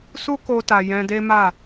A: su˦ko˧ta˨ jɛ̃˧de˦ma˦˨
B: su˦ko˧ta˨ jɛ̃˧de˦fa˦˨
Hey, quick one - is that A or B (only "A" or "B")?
A